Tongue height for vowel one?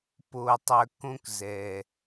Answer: mid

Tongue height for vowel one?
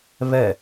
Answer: mid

